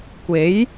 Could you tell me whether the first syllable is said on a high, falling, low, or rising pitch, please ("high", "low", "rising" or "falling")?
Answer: rising